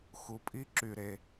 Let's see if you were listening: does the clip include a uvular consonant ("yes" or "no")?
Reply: no